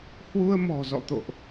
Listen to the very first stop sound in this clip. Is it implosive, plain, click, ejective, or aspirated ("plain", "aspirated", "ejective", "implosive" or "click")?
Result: plain